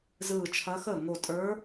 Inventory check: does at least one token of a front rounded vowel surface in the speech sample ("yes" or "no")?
no